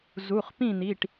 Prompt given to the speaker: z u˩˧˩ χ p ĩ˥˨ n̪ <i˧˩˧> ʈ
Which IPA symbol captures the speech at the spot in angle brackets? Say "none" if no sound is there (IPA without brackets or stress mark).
i˩˧˩